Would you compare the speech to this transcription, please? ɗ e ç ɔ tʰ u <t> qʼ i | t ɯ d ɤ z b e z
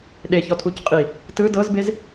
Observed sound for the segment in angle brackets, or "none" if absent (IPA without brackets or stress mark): c